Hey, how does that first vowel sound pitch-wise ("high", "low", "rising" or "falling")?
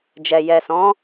low